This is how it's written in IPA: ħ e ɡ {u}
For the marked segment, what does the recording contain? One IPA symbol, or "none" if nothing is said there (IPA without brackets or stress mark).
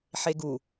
u